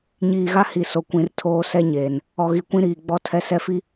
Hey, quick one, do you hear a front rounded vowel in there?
no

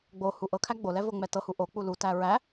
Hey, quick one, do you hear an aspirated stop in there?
yes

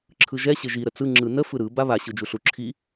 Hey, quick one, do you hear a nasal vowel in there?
no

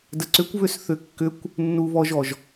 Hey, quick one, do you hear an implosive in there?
no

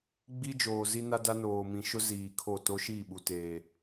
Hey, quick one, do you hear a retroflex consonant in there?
no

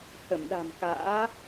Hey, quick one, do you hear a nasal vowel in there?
no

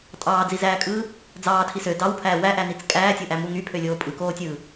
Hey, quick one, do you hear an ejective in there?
yes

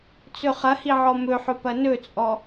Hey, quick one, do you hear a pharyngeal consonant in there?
yes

